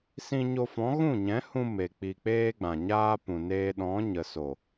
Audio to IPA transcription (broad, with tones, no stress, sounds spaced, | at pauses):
s ĩ˧ ɲ o˧ f ɔ̃˨˦ ɣ ũ˦˨ ɲ ɛ̃˨˦ h ũ˧ m e˨ k͡p i˨ k͡p eː˦ ɡ͡b ã˨ ɲ aː˦ p ũ˨ n eː˧ ɗ ɔ̃˨˦ ɲ ə˨ s o˨